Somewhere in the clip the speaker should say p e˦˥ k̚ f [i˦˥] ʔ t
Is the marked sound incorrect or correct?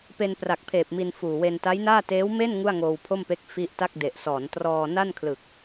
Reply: correct